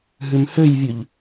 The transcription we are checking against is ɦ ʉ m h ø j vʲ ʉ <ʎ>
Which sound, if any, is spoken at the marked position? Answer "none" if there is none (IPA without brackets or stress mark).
ʎ